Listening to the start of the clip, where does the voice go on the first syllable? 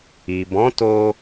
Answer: low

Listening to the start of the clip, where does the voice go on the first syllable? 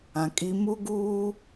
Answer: low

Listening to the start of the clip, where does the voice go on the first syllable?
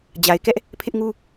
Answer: low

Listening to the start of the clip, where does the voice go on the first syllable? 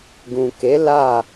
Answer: low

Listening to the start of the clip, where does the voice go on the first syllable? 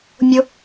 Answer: high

